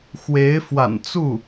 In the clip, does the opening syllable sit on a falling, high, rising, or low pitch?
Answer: rising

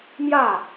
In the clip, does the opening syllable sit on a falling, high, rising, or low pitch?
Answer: falling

